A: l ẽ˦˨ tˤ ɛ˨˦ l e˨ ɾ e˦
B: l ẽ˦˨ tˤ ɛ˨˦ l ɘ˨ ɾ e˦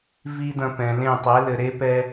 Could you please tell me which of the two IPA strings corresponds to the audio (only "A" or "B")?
B